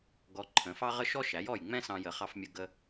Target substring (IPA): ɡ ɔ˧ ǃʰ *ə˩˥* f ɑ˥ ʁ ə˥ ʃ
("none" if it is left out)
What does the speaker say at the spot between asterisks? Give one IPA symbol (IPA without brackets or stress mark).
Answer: ə̃˩˥